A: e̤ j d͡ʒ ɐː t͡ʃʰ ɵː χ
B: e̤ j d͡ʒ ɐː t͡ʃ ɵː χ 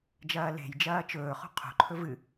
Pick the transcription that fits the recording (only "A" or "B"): B